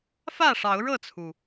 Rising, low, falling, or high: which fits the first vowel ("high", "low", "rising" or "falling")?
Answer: falling